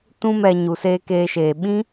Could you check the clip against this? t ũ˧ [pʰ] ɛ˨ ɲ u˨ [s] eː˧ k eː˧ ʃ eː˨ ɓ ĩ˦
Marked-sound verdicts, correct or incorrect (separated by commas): incorrect, correct